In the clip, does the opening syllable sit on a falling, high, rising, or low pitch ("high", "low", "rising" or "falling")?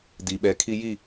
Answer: low